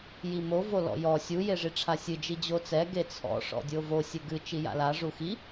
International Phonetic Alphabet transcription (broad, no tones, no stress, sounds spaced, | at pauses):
j i m o v o l ɔ̰ j ɔ sʲ u j e ʐ i ʈ͡ʂʰ a sʲ ɨ d͡ʒ i d͡ʑ o t͡s ɛ ɡ e t͡sʰ ɔ̰ ʂ ɔ̰ dʲ o v o sʲ ɘ ɡ ɨ t͡ʃ i j a̰ l a ʐ u x i